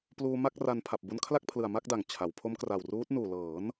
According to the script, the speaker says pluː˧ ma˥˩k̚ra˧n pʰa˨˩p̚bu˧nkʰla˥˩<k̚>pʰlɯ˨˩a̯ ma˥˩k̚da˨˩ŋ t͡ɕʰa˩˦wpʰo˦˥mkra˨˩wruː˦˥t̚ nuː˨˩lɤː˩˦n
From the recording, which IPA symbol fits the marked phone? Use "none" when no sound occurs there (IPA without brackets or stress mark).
k̚